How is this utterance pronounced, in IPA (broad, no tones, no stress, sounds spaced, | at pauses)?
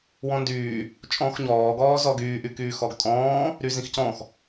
w ɔ̃ n d yː | t͡ʃʼ ɔ̃ː x ɲ ɔː ɡ ɔː z ɔ ɡ yː ʔ y k yː x ɔ ɡ tʼ ɔ̃ː | ɾ y z ĩ x c ɔ̃ x